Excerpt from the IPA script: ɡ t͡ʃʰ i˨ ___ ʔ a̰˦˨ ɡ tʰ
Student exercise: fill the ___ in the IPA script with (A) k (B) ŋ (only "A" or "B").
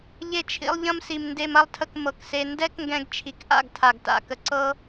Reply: A